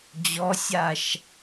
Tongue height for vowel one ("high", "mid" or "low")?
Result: mid